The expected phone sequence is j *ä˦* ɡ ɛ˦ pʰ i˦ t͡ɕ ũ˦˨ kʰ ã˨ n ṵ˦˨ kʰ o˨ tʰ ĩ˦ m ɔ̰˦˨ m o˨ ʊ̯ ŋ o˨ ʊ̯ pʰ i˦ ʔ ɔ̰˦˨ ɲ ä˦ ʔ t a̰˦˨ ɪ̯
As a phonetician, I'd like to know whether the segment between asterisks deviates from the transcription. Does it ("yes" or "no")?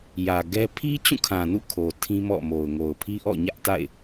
yes